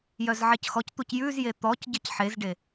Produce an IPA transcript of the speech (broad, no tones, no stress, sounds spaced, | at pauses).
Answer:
j œ z ʕ e c x ɔ c t̪ u c j ʉ z j e t̪ ɔ c ɟ ɘ c ħ e z ɖ e